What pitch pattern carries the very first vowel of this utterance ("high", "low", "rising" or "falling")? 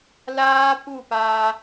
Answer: high